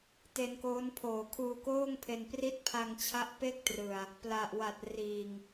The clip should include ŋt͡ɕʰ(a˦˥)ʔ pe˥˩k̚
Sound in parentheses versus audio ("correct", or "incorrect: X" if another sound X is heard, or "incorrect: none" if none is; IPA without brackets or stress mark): correct